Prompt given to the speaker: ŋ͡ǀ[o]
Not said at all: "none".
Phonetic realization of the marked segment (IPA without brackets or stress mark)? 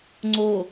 o